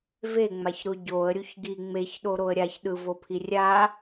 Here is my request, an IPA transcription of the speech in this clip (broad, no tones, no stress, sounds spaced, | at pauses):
v e ŋ͡m a ç ɾ o ɟ o ə̯ ɾʲ u ç ɡ i ŋ͡m e ç ɗ o ɾ o ə̯ ɾʲ a ç ɗ ɯ v o pʰ i rʲ a